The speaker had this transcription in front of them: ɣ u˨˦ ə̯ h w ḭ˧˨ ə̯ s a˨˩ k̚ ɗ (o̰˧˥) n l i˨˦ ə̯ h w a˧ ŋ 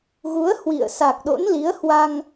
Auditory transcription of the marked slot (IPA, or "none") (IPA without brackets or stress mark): o̰˧˥